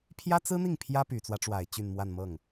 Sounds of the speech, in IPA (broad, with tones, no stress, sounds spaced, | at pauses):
pʰ j ä˥ t͡s ɹ̩˥ n̪ i˥˩ ŋ pʰ j ä˥ p y˨˩ t͡s w ä˦ ʈ͡ʂ w a˨˩ ɪ̯ t͡ɕ y˥˧ n m w a˥˧ n m ɤ˥˩ ŋ